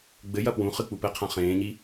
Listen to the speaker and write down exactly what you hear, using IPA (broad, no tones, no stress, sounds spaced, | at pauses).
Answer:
ɡ͡b ɘ j ɐ p w ũ χ ɨ k͡p u p ɘ qʰ ã χ ẽː ɲ i